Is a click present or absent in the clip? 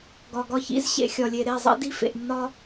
absent